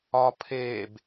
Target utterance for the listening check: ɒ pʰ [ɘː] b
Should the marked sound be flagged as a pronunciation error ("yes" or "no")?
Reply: yes